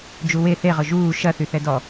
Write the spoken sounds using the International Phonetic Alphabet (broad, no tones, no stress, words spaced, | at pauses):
d͡ʒuwe θeʁʊ ʒuː ʃɐθy θɛdɔ